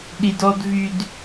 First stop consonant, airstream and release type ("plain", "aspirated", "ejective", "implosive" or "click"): implosive